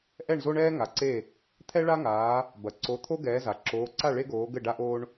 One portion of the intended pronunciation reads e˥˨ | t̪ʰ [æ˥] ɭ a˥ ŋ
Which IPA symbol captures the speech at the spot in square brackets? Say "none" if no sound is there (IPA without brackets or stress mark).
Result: ɛ˥